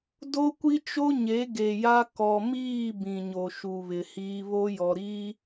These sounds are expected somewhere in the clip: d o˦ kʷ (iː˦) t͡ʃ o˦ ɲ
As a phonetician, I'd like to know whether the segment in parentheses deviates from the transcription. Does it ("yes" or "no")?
yes